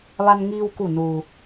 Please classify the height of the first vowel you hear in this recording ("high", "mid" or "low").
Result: low